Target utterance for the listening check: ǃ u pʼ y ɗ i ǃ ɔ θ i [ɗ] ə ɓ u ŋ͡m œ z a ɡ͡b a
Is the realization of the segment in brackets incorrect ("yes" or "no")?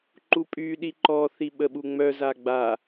yes